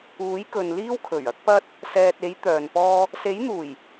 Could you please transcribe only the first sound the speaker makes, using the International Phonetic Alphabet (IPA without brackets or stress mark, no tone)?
uː